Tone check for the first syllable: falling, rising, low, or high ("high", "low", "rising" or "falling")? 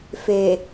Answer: low